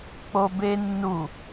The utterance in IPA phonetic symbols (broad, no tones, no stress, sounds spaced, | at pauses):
k͡p o b e nː u